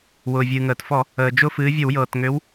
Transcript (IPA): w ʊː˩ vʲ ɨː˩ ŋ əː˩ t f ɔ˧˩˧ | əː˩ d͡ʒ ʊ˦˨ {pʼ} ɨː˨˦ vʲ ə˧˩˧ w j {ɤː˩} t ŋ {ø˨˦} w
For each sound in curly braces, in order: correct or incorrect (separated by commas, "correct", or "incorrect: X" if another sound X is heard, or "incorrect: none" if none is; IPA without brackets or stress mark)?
incorrect: f, correct, correct